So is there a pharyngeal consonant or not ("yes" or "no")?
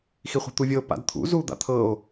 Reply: no